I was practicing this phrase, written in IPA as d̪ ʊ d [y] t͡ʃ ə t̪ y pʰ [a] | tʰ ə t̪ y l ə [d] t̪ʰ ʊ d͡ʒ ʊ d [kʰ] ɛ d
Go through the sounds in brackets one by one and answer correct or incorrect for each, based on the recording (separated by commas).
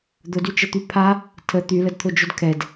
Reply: correct, correct, correct, correct